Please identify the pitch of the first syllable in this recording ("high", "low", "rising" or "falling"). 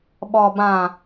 low